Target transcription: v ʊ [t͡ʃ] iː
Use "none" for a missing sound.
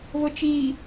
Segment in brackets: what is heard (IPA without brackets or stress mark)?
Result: t͡ʃ